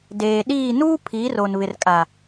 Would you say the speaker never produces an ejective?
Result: no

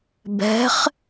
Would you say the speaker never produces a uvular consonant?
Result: no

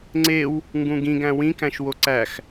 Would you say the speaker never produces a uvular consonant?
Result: yes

